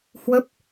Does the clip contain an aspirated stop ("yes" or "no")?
no